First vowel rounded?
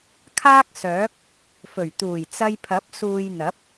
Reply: no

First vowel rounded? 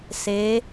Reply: no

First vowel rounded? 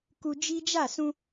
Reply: yes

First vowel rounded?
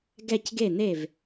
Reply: no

